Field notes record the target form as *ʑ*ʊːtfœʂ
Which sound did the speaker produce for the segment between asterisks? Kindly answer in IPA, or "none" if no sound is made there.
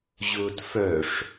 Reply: ʑ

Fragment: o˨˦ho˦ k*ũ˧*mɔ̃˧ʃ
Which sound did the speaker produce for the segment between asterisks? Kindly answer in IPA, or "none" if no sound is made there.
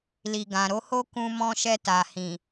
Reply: ũ˧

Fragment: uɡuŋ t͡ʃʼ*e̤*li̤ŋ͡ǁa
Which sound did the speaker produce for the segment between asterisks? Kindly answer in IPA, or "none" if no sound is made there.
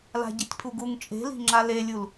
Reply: e̤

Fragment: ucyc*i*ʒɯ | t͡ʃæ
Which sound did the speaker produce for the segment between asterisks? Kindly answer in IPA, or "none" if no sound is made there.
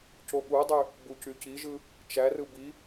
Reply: i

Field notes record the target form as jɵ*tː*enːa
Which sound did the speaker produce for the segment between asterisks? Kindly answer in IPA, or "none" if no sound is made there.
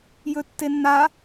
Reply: tː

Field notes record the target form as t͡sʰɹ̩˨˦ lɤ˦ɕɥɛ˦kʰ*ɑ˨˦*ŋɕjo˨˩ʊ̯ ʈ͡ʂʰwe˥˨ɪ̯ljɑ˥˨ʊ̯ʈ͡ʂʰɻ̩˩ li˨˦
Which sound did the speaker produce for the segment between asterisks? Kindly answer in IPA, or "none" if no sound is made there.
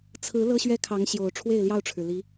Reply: ɑ˨˦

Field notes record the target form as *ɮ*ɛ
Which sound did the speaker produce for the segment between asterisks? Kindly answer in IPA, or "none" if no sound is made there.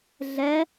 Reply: ɮ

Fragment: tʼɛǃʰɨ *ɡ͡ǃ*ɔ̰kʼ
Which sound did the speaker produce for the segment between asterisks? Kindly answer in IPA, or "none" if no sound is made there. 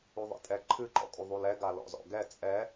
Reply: ǃ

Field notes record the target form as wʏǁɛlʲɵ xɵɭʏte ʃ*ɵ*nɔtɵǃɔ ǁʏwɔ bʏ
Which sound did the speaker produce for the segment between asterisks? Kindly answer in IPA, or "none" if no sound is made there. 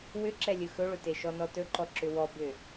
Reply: ɔ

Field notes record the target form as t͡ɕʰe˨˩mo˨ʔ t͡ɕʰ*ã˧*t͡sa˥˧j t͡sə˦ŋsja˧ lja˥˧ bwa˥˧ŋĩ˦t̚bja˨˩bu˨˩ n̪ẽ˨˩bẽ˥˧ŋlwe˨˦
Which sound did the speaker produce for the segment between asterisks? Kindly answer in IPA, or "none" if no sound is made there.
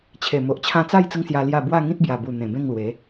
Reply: ã˧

